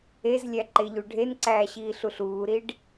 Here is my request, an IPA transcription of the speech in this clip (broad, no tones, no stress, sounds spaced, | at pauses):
e z lʲ æ ǃ e ʎ u ɖʱ e n ǀ æː ɕ iː ɬ u ɬ uː ɾ i ɖ